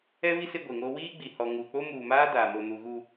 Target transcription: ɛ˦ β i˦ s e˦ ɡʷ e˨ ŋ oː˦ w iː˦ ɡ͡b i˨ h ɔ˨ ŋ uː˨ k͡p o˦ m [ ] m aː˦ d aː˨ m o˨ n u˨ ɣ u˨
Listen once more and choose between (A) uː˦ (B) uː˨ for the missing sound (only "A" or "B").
B